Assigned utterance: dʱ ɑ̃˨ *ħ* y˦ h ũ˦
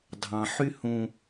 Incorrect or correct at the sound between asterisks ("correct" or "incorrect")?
correct